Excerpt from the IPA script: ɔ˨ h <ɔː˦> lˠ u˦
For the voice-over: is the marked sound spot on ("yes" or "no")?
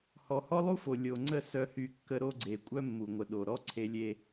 no